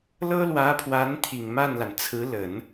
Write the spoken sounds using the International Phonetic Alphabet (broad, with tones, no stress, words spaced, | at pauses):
lɤ˥lwä˧˥pʰwa˧˥n t̪ʰi˨˩ŋma˥˩nla˩n t͡sʰɹ̩˧˥lə˨˩˦n